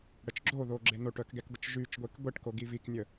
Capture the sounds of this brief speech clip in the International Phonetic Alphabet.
ɽ ə t͡ʃ ɡ͡ǁ o ð o ɡ͡ǁ e n o ʈ œ k ɡ ɛ k ɡʷ ə t͡ʃ ʒ y t͡ʃ ɡʷ e k ɡʷ ɛ ʈ k o ɡ i v i k nʲ ə

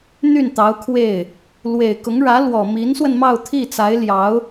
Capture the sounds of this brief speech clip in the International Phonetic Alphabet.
n̪ y˥˩ n t̪ ɑ˧˥ ʊ̯ kʰ w e˥˩ ɪ̯ | l w e˨˩ ɪ̯ k ʊ˧˥ ŋ ɻ ä˧˥ l w ɔ˨˩ m i˧˥ n s w ə˧ n m ɑ˥˧ ʊ̯ t̪ʰ i˥˩ t͡s a˧˥ ɪ̯ l j ɑ˧˥ ʊ̯

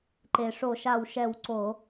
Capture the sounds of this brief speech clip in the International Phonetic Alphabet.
ǃ e˩ ʂ o˧˩˧ ʃ a˧˩ w ʃ ɛ˧˩ w ǀ o˧˩˧

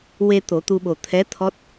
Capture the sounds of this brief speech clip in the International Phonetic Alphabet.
w e˧ t̪ o˨˩˦ t̪ u˧ ɓ o˨˩ t̪ʰ ɛ˧˥ t̪ʰ ɔ˦˥ t̚

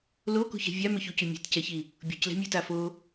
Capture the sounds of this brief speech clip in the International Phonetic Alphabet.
l o k ṳ ç ɛ̤ vʲ a m ʏ ç u c ʉ mʲ e̤ t c ɛ ç i | bʲ ṳ c l ɛ̤ mʲ o t a f o

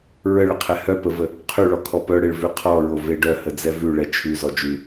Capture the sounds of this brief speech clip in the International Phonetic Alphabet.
ɹ ə ɭ ə qʰ ɛ h œ p ə v ə | qʰ ʉ ɭ ɔ kʰ ɔ p œ ɽ e ɭ v ʉ qʰ ɔ ɹ o v e ɖ œ h ə d͡z ɛ v ʉ ɭ ɛ t͡ʃʰ ʉ z ɔ d͡ʒ ʉ

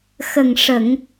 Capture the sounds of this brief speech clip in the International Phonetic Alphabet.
x ə˨˩ ŋ ʂ ə˨˩˨ ŋ

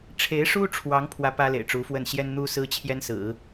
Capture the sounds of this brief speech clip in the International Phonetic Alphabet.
ʈ͡ʂʰ e˧˥ ɪ̯ ʂ u˥ ʈ͡ʂʰ w ɑ˧˥ ŋ pʰ w ä˥ p ä˥ l ḛ˨˩ ɪ̯ ʈ͡ʂ u˧˥ f w ə˥˩ n ɕ j ɛ˥ n n̪ u˥ s ɹ̩˥ t͡ɕʰ j ɛ˥ n s ɹ̩˨˩˦

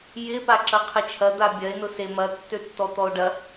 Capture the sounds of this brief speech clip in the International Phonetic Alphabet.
j ɪ p a ǁ ɐ qʰ ɪ t͡ʃʰ ɐ d̪ a bʲ ɐ e̯ n ʊ s e m ɐ tː ø tː ɔ t̪ ɔ o̯ ɖ ɐ

